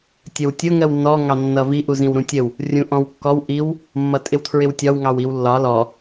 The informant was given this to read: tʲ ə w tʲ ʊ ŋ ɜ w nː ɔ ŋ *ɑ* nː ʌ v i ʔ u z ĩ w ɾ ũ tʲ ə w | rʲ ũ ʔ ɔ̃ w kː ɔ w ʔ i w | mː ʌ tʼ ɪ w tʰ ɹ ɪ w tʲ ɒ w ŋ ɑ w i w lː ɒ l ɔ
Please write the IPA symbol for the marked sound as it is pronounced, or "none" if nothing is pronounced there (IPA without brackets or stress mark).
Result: ɑ